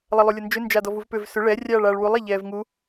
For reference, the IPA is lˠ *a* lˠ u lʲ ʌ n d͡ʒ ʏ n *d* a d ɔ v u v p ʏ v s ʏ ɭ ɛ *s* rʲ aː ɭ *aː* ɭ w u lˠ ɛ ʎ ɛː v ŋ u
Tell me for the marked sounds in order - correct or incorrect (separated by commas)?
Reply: incorrect, incorrect, incorrect, correct